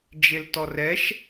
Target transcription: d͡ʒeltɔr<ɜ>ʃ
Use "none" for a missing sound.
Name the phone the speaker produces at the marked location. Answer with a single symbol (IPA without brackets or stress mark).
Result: ɛ